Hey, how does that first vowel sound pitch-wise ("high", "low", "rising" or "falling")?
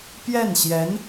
falling